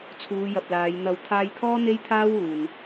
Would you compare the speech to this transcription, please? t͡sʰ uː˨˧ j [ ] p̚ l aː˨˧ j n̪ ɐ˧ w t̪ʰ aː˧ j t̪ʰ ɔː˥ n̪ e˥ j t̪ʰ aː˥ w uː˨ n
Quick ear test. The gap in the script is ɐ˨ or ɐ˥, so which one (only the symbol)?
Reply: ɐ˨